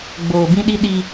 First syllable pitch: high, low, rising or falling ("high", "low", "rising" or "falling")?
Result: low